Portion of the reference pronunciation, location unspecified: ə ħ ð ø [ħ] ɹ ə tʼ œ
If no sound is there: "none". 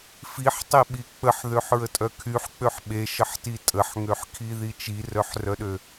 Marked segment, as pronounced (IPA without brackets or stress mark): ħ